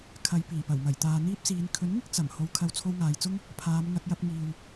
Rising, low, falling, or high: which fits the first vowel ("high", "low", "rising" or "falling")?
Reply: low